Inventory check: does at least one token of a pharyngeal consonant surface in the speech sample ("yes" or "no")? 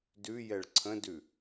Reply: no